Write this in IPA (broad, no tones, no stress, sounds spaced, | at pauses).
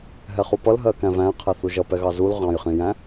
ɦ ɛ χ u p ʌ l ɦ ɜ k æ̃ v æ̃ qʰ ɛ θ u ʒ ʌ p ɛ ɣ ɑ z u l ʁ ɑ̃ j χ ĩ j æ̃